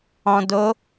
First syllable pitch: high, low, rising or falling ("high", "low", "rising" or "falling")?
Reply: low